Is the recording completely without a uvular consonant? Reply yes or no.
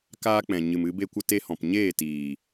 yes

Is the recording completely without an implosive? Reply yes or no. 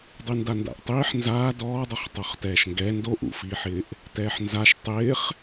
yes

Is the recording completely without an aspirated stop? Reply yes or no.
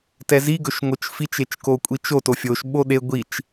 yes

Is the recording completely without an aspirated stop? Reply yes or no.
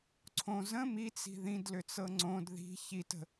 no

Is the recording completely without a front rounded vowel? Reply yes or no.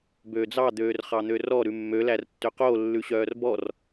no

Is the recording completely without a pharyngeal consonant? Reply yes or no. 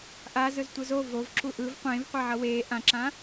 no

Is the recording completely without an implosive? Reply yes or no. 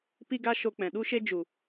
no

